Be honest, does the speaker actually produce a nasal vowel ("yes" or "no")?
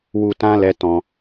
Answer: yes